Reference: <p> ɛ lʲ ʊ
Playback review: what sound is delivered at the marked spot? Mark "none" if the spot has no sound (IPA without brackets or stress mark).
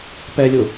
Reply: p